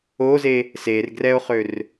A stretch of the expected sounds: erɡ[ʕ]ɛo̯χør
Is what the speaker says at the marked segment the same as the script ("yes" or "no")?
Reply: no